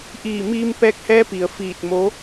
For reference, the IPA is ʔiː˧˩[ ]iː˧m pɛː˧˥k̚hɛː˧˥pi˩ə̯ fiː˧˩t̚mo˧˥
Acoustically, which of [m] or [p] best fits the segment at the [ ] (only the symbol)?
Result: m